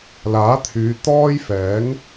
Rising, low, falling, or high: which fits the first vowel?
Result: rising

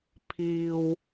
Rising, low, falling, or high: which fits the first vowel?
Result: low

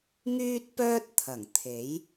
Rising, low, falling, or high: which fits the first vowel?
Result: high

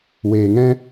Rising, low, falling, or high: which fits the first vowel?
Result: low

